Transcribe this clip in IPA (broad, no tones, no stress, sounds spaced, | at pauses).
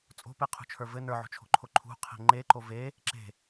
t͡sʼ o̤ p e qʰ ṳ t͡ʃʰ ə˞ v ɘ n ə˞ ʕ o̤ t͡ʃʰ o̤ ǃʰ o ǃʰ ṳ qʰ e̤ ŋ͡ǃ e ǃ o v e | ǁ e̤